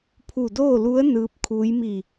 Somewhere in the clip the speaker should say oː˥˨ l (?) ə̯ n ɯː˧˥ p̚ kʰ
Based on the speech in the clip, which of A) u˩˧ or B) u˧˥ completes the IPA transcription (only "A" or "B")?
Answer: B